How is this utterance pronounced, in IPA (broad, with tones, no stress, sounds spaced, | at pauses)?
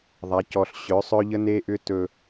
ðˤ a˨˦ c ɔ˨ ɬ ɕ œ˨˦ sˤ œ˦ ʎ ə˦ n e˦ ʔ ʏ˦ t ɵ˧